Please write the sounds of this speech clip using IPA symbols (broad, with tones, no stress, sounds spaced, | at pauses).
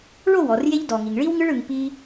ɭ o˦˨ w ɔ˨ r j e˦ ʎ d ɔ˨ ŋ i˨ ŋ ɭ i˦ w ŋ ɯ˦ ɭ ɯ˧ ŋ p i˦